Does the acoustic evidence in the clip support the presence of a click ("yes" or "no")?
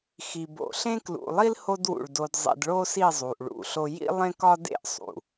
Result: no